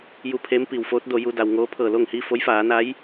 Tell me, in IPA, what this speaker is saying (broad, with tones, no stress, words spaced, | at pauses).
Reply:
ju˧pʰeː˧˥mpi˩w foː˧˥t̚do˩˧ ju˧da˩wŋoː˧˥ pʰɤː˧˩lo˥˨ŋhi˥˨ fo˧˥jfaː˩˧na˧˥j